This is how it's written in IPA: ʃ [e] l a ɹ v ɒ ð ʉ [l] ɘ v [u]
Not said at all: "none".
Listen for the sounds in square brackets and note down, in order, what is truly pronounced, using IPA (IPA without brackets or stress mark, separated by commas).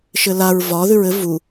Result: ɘ, ɹ, u